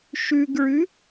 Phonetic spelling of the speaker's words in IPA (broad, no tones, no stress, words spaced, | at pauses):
ʃʉɡɹʉ